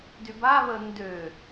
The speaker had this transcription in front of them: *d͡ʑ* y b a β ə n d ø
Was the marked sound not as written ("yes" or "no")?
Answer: yes